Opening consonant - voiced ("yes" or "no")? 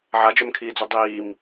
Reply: yes